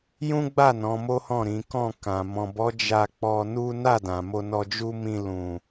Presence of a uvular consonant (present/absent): absent